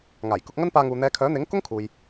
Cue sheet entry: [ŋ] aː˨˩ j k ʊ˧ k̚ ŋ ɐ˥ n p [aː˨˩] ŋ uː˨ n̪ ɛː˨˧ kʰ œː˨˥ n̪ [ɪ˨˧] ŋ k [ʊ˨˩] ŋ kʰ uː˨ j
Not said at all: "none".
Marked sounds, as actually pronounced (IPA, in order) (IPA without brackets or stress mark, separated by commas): ŋ, aː˧, ɪ˨˥, ʊ˥